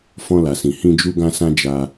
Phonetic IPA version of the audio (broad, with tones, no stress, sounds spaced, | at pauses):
f ɔ̃˧ l a˨ s ĩ˨ h ĩ˧ d͡ʒ u˧ ɡ ã˧ s ã˧ d͡ʒ a˧